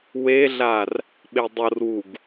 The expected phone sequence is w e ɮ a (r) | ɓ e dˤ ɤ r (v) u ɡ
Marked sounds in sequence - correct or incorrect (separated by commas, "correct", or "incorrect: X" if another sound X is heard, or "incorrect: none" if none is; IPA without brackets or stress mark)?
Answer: correct, incorrect: w